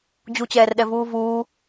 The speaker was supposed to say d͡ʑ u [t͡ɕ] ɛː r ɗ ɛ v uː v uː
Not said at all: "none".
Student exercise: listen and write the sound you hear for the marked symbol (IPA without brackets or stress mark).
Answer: t͡ɕ